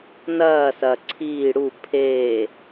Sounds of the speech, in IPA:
n ɐː s ɐ ǀʰ iː ɽ u pʰ eː

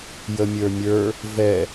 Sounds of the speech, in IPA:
j ə mʲ ə˞ mʲ ə˞ | v ɛ

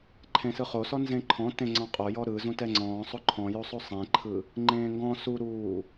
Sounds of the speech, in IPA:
ǃʰ ẽ s ɯ χ o s ɔ n z ẽ ǃʰ ɔ̃ t ẽ ŋ͡ǀ ɔ̃ qʼ o j ɔ ɾ ɯ z ũ t ɛ ŋ͡ǀ ɔ̃ː sˤ o ǃʰ ɔ̃ j o sˤ o sˤ ẽ ǃʰ ɯ | ŋ͡ǃ ẽː ŋ ɡ ɔ̃ s u ɾ uː

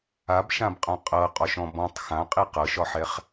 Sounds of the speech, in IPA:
a b ʃ ã b qʼ ã qʼ ɤ qʼ ɒ ʃ ɔ̃ b ɔ̃ tˤ x ã qʼ i q ɤ ʃ ɒ ħ ɛ χ

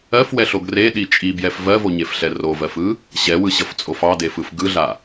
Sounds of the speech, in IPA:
ɜ f w ɛ ɬ o ɡ r e ɗ i t͡ʃʼ i b j ɛ f v ɜ v o ɲ e f ɬ ɛ r o v ɜ f ɯ | ɕ ɛ w ɯ ɕ ʌ f t͡sʼ o f ɑ d e f ɯ f ɡ ɯ ɮ a

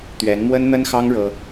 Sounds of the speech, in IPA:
t̪ ɥ ɛ˧˥ n m w ə˥ n n̪ ə˥ n x ɑ˥ ŋ ɻ ɤ˥

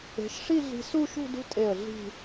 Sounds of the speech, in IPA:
e̤˩˧ ʃ ʂ i˥˧ ɮ i̤˧ s u˥˧ ʃ ṳ˥˧ d ṳ˥ tʼ e˧˩ ə̯ ɮ i̤˧˩

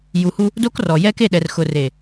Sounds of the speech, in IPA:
j u˨ h u˦ | d o˦ k r ɔ˨ j ɛ˦ k e˦˨ ɗ ɛ˨ r x ʊ˨ r e˨

